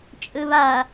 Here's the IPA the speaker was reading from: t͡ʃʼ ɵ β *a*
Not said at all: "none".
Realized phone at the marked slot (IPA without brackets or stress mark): a